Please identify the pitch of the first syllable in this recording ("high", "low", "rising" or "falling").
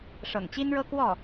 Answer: low